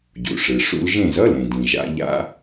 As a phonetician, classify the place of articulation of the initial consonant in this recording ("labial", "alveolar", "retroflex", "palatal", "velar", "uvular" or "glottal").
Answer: palatal